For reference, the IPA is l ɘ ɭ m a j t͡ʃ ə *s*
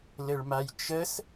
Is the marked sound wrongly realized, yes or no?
no